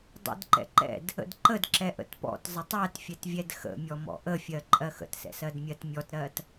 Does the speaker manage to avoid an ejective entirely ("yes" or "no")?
no